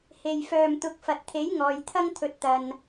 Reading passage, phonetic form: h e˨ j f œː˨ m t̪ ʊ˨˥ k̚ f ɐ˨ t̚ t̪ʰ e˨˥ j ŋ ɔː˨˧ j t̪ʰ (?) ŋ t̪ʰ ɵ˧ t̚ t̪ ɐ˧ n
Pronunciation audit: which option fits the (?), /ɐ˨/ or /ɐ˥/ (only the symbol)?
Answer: ɐ˥